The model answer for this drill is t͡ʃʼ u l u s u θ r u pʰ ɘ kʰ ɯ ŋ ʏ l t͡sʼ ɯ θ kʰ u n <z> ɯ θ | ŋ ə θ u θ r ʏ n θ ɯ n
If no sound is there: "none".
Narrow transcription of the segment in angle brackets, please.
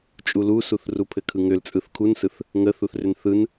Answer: s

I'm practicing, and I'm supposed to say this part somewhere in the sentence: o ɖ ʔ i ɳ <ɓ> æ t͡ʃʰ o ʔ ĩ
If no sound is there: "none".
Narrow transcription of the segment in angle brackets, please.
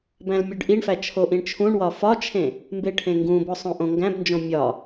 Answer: f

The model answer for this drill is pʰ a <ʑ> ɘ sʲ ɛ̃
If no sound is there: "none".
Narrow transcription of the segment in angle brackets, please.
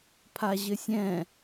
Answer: ʑ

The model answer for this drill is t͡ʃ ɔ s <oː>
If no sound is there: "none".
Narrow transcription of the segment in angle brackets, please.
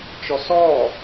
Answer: ɔː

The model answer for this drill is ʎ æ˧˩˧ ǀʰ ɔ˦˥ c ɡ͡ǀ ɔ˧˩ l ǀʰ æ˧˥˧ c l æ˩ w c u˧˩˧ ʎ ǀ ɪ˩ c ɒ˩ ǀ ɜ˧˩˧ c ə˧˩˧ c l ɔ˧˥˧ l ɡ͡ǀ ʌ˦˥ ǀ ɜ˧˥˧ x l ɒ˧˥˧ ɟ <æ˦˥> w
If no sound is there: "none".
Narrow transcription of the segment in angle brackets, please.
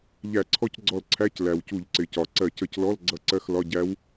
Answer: æ˦˥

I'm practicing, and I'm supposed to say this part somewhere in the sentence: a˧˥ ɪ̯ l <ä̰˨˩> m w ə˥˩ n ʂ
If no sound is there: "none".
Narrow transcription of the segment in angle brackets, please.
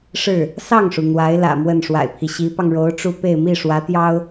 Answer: ä̰˨˩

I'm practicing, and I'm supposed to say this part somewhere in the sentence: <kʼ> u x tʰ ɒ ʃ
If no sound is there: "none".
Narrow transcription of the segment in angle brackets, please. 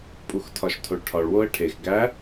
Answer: pʼ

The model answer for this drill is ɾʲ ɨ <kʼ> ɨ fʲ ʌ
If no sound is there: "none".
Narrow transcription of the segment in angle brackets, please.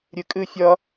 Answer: kʼ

